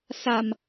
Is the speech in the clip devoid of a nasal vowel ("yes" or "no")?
yes